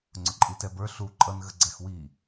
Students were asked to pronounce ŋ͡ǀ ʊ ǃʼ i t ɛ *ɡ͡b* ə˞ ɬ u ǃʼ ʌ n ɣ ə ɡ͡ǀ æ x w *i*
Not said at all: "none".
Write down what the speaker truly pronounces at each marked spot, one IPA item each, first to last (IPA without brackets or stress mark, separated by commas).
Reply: b, i